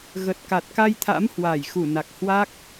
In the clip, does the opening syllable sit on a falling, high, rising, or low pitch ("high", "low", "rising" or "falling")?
low